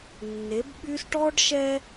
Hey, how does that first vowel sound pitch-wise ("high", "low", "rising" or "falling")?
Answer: rising